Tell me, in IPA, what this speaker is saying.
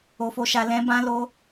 o˧fo˧ʃa˧ lɛ̃˧bã˧lo˧

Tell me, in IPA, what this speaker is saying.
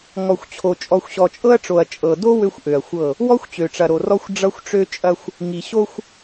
ŋɔ˨xʷt͡ɕʰo˨ t͡ʃʼɔ˨xʷɕɔ˨t͡ʃʼɤ˦ɐ̯ʈ͡ʂo˨ɐ̯ t͡ʃʼɤ˨do˦ wø˦xʷʔø˨ɐ̯xʷɤ˦˨ | wɔ˦xʷt͡ɕø˨ʈ͡ʂɐ˨ɾo˨ rɔ˦xʷ ɖ͡ʐʌ˦xʷʈ͡ʂø˦ t͡ʃʼɐ˦xʷ | ŋi˨ ɕo˦xʷ

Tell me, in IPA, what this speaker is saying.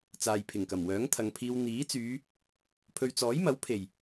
t͡saː˨jpʰɪ˨˩ŋkɐ˨˩m wœː˨˥ŋt̪ʰɐ˨ŋpʰiː˧w n̪iː˨˥ t͡syː˨˧ | pʰɵ˨ɥt͡sɔː˨˥jmɐ˨˥w pʰe˨˩j

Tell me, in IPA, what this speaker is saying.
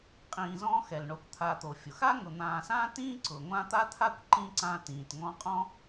qʼĩː˨zɔ̃ː˦xɛ˩l ɳo˩kʷt̪ʰa˨ t̪o˩fʲʊ˩xa˥ŋʊ˨ n̪ãː˨sãː˥tĩː˥ ǀʊ˩ŋʷã˦ t̪a˥t̪ʰa˥kʷ ǃĩ˦ ǀã˦tĩː˨t ŋɔ̃˦qʼɔ̃˥

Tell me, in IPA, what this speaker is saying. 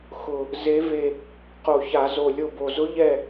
xʊ˨˩ | ze˧˥ve˦˨ | qo˨˩ça˧˩˧zo˨˩ lʲo˦˨bo˨˩ zʊ˧˥ʎɛ˦˨

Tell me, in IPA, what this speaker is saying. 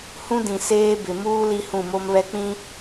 hũ˦dĩ˨ seː˦bɪ˨ muː˦ li˦hũ˦˨mo˦mβɛ˦ k͡pĩ˦

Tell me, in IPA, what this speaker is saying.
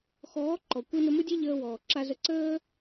xɔː˨˦ǃɔ˨ kʷi˧nʊ˧mʊ˦dʲe˦ ʎəː˧wɔː˨ ǁa˦zə˦ ǀəː˦

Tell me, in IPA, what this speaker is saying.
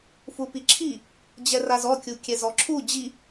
fupiǁʰi | d͡ʑɛrazɔ kʲukʲɛzɔǁʰu d͡ʑi

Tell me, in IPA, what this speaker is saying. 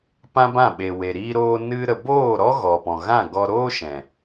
pã˦bã˦˨ɓe˨we˨ ɾiː˧ɾoː˧ nɨ˧ ɾə˨boː˦˨ɾɔ˦ ɣɔ˨pɔ̃˨ɣã˦˨ɡɔ˧ ɾoː˦ʃɛ̃˨

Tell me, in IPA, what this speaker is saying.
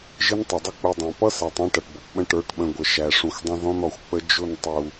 ʒɪ˦ntˤə˨dˤʊ˦ k͡pu˨dˤæ̃˨pʌ˦sæ˨tˤ æ̃˦ʈʌ˨ʈbʌ˨pɓə̃˦ ʈə˞˨˦ʈɓə̃˨ ɡʷə˨ʃæ˨ʂũ˨xʷdˤə̃˦ ðɔ̃˦nɔ˨xʷk͡pə˦ d͡ʒʊ˦˨n tˤu˨

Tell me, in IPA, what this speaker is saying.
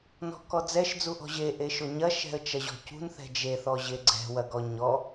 nɔ̤kɔd͡zɛʃ d͡zuʔɔ̤ʑe ʔeʃoɲɐ ʃɛ̤ə̯t͡ʃɐʑɔ̤cṳn θɛ̤d͡ʒe θɔʑeɡ͡ǀɛ̤ wɐɡɔɲɔ

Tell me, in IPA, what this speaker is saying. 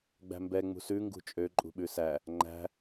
ɡ͡bæ̤mbɛ ŋ͡mṳsʉ ŋɡṳt͡ʃʼø ǃʼṳɓʉsæ | ŋ͡ǃæ̤

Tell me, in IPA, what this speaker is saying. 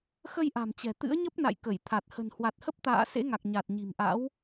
xə˧jʔa̤˨˩mt͡ɕɛ̤˨˩ t̪ɨ̰˧˥ə̯ɲə˦˥p̚na̰˧˨j kə˧˩jt̪ʰa˨˩t̚ hə̤˨˩nhwa˨˩t̚hə˦˥p̚t̪a̰ː˧˨ sḛ˧˥ŋa˨˩k̚ ɲa˨˩t̚ɲi̤˨˩mʔa̰˧˥w

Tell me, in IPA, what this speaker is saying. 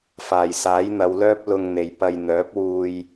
faː˨˩jsaː˨˥jn̪ɐ˨˧wlœː˥p̚ lʊ˧ŋn̪e˨j pɐ˨jn̪œː˨˥p̚wuː˧j

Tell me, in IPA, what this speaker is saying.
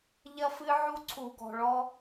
ʎɐ˦fɨ˦ ʕu˦ǀʰu˧ɡɔ̤˧ɭɔ˦

